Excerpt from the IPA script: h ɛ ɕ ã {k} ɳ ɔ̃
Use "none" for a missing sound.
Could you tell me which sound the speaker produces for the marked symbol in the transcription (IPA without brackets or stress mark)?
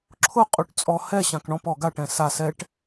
k